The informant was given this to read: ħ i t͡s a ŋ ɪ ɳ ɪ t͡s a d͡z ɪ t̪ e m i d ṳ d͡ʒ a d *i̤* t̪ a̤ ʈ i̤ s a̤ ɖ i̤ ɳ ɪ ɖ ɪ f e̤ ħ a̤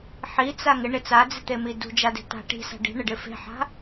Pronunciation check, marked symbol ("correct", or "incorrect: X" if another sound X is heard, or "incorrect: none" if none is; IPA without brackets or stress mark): incorrect: e̤